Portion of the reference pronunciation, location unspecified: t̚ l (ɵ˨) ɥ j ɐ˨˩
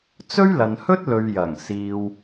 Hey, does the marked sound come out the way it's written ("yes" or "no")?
yes